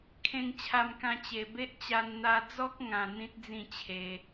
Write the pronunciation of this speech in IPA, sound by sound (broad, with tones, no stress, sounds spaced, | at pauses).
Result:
kʰ ẽ˧ ŋ t͡ɕʰ a˧ m k ã˧ t͡ɕ e˨˩ b e˦ ʔ t͡ɕ a˧ n n̪ a˧ d͡z ɔ˦ k̚ ŋ ã˧ n̪ ĩ˦ t̚ d͡z ĩ˥˧ t͡ɕʰ e˧